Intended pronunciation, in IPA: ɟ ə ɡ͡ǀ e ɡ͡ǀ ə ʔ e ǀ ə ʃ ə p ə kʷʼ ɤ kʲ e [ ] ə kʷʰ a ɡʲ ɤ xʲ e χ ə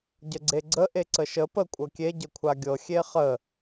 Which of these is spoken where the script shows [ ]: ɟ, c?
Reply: ɟ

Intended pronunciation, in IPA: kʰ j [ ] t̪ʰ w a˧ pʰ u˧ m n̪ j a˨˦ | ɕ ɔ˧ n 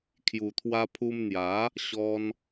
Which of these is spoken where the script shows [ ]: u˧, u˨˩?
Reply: u˨˩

